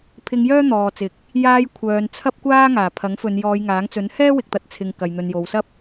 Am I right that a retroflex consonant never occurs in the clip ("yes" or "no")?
yes